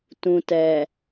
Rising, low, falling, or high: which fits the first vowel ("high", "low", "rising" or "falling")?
low